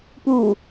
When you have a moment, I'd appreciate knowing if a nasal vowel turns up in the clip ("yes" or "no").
no